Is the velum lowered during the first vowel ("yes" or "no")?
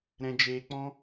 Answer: yes